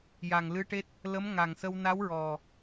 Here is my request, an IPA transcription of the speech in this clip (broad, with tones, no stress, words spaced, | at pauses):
ja˨˩ŋlɨ˧˥ʈe˦˥t̚ | lə˧˥mŋa˨˩ŋsə˧w na˧˥wɹɔ˨˩